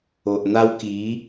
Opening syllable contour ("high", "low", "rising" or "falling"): low